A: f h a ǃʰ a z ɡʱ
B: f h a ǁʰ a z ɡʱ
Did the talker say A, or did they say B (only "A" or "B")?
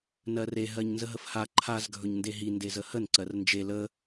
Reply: A